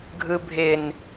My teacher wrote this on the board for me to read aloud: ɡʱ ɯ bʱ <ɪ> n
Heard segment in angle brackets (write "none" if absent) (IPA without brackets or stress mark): ɪ